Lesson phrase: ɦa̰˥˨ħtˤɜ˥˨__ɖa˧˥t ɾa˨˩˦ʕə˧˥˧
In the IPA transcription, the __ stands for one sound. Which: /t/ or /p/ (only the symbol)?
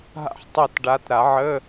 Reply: t